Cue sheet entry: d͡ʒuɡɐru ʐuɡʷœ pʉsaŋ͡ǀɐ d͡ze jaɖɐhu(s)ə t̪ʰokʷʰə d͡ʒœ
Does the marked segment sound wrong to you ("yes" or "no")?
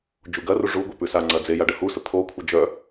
no